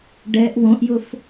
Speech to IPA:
ɖ ɛ ʔ w õ ʔ j ʊ f

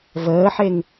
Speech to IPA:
v əː ħ e ŋ

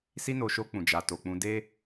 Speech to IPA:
s i˧ n o˨ ʃ o˧ k͡p ũ˨ d͡ʒ a˨ t o˨ k͡p ũ˧ d e˧

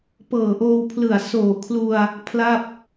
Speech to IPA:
p ɤː˨˩ ʔ oː˧ w pʰ l ɯ˨˩ a̯ s oː˨˩ kʰ l u˧ a̯ | pʰ l a˥˩ p̚

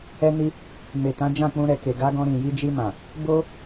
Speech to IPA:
ɛ˧ n i˧ | m e˨ t ã˨˦ d͡ʒ ã˦˨ k͡p ũ˧ ɾ ɛ˨ k e˨ ɡ a˨˦ ɡ ɔ̃˧ ɾ ĩ˨ j i˧ d͡ʒ i˧ m ã˨ | b o˦

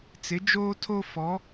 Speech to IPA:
t͡s ɪ˨˦ d͡ʒ oː˦ tʰ o˦ f ɔ˨˦

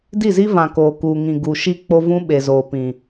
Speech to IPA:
d i˦˨ z i˦ v ã˨ k oː˨ k uː˨ ŋ ĩ˨ ɡ u˨ ʃ i˦ k͡p o˦ v ũ˦ ɓ e˨ z oː˨ p ĩ˨

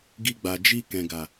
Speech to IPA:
ɡ i˧ ɡ͡b a˨ d͡ʒ i˧ k ɛ̃˨ ɡ a˨

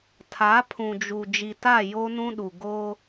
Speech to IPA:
tʰ a˨˦ pʰ ũ˨ d͡ʒ u˨ d͡ʒ i˨ t a˦˨ j o˦ n ũ˦ ɗ u˨ ɡ o˦

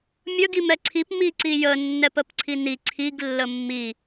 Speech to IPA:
mʲ ə ɡ i m ɛ ǀʰ i p m i ǀ i j ə nː ɛ p ə p ǀʰ i n i ǀʰ i ɡ lː ə mː i

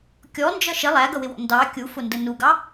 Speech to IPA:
kʲ ɔ n d͡ʒ ʌ ʃ ɪ lˠ æ ɡ ʌ w ɪ w ɔ̰ n d ɑ kʲ u f ʊ n d ə n u ɡ ɑ

